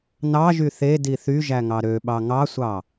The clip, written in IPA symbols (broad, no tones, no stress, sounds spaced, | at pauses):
n ɑ ʒ y θ e d i θ y ʒ æ ŋ ɑ ɾ ø ɓ ɑ ŋ ɑ sʷ ɑ